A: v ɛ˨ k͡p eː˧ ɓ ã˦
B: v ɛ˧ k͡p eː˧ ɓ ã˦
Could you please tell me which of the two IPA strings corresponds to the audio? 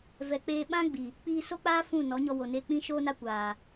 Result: A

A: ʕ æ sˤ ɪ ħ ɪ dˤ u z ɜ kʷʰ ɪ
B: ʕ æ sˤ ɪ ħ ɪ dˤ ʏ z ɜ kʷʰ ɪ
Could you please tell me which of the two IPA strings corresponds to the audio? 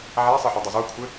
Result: A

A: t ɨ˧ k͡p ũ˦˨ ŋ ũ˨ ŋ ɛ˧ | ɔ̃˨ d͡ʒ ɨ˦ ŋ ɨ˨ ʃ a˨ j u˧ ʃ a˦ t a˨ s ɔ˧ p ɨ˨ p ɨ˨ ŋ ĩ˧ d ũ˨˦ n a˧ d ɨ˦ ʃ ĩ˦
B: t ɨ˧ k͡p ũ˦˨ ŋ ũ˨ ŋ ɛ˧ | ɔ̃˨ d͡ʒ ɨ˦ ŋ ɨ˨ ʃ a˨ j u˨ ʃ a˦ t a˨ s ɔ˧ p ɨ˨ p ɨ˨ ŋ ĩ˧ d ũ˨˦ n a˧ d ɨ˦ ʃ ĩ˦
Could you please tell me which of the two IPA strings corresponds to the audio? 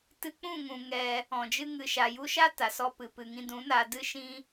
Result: A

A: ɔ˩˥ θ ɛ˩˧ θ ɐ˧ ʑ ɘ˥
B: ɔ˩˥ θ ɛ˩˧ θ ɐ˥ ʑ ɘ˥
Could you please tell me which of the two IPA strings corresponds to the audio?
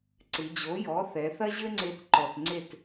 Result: B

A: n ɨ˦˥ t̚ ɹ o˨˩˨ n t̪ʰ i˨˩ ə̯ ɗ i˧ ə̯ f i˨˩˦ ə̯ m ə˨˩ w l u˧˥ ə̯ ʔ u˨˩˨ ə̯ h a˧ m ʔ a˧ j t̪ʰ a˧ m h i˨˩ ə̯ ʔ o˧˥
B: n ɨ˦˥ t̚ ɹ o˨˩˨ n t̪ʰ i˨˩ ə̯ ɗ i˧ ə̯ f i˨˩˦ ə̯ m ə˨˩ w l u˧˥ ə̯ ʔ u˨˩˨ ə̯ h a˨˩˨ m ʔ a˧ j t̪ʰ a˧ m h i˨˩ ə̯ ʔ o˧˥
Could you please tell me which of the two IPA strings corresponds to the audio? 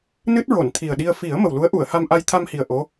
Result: A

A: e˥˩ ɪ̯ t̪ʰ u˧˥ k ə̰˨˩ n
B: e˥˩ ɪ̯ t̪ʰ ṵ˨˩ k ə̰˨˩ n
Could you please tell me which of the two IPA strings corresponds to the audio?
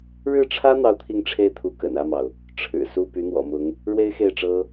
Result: A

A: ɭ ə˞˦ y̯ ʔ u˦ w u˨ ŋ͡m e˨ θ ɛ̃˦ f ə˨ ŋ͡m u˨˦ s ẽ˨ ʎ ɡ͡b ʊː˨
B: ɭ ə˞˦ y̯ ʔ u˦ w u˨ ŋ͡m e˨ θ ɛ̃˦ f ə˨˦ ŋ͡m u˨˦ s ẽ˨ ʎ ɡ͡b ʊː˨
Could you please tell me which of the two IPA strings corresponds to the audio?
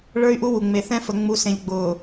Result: A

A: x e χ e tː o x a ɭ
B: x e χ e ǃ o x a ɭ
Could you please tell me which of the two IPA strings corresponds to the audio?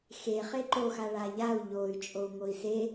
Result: B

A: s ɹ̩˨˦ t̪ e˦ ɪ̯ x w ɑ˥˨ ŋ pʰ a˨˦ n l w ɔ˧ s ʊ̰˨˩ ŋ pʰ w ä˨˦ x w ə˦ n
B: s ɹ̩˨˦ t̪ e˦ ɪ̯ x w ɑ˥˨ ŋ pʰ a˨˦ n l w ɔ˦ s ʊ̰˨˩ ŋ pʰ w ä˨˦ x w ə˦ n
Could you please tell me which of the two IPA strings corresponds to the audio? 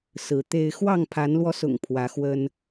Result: A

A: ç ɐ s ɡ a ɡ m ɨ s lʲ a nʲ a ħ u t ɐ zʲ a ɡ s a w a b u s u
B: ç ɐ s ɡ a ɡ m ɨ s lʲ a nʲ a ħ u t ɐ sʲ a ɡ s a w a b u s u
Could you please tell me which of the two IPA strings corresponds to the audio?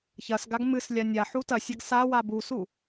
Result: B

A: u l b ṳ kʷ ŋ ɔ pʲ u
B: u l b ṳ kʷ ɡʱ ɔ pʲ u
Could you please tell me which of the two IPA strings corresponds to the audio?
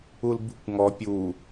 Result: A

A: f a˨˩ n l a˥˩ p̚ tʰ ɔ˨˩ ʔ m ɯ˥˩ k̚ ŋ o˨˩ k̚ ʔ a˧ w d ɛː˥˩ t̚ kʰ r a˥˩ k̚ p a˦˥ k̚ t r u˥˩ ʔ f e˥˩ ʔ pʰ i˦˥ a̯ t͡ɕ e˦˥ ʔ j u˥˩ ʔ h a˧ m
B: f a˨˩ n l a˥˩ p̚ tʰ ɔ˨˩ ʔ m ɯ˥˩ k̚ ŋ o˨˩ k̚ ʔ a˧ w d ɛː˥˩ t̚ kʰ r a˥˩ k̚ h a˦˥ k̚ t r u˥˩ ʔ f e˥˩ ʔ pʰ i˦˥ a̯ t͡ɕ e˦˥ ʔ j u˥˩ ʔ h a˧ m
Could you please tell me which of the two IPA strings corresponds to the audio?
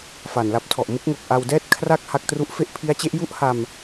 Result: B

